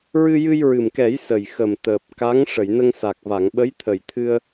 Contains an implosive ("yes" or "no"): yes